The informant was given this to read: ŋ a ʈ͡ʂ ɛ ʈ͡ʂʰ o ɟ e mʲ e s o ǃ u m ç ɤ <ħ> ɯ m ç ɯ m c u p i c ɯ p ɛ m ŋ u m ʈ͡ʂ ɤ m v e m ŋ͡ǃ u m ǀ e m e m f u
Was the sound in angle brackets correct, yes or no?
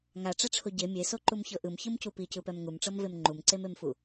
no